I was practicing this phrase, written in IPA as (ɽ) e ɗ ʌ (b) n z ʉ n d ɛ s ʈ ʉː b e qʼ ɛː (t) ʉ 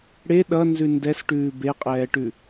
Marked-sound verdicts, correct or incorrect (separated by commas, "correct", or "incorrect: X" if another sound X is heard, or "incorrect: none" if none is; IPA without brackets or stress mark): correct, incorrect: none, incorrect: ʈ